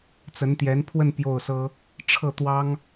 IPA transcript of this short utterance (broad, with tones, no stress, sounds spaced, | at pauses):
t͡s ə˧˥ n t̪ j ɛ˧˥ n pʰ w ə˥˧ n p j o˥˩ ʊ̯ s ɤ˥ | ʈ͡ʂʰ ɤ˥˩ t̪ w ɑ˥ ŋ